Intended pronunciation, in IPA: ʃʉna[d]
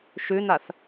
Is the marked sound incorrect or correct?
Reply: incorrect